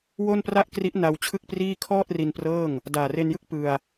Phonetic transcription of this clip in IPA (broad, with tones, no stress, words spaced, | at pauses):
wo˥˩npra˥˩ʔkri˦˥ʔ na˧w t͡ɕʰɯ˥˩k̚priː˥˩ kʰɔː˥˩t̚ri˧n prɤː˥˩ŋ | daː˨˩re˧njɯ˥˩k̚ pɯ˧a̯